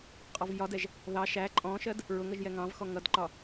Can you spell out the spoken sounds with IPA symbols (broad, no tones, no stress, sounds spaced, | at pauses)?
qʼ ɔ v j ɒ d ɛ ʒ | ð ɑ ʃ æ ǃʼ ɔ̃ ʃ ɜ d | ɹ ʊ ŋ ʌ ʒ j ɛ ŋ ɑ̃ v x ɔ ŋ ʌ d ǃ ɒ